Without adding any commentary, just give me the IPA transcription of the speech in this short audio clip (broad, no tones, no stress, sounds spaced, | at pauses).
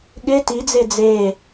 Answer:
ɠ ɪ t i d͡z e d͡z e